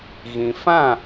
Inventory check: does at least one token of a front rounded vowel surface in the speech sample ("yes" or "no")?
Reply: no